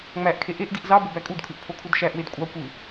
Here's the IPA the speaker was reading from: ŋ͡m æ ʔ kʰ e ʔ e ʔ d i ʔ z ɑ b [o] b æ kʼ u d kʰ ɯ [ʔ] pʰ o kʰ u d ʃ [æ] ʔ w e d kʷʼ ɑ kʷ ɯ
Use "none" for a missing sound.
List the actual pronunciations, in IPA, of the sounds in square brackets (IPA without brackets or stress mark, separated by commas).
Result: o, ʔ, æ